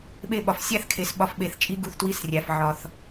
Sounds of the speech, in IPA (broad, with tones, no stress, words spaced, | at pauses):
ɓe˦˨ɓɒ˨f sʲæ˦θ kʰe˨sɓɒ˧fɓe˨θ t͡ʃʼi˦ɡu˧θtwi˦srʲæ˨f ʕɒ˨θ